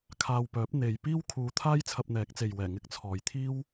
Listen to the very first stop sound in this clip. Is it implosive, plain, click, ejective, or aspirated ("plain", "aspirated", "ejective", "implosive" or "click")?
aspirated